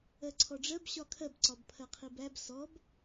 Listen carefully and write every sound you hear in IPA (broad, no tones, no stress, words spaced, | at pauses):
ɜǀʰɔɖ͡ʐɜb ɕɒkʰɜb ǀɒbpʰɜqʰibæb sɔb